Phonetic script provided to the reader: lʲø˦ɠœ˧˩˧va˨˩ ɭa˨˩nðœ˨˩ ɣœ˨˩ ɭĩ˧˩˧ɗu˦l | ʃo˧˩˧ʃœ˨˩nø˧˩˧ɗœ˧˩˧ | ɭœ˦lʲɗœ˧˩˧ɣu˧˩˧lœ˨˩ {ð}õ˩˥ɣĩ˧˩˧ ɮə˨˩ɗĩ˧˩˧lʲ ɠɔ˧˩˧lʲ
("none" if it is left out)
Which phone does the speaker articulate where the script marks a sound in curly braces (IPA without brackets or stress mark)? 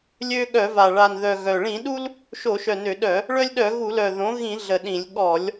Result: ð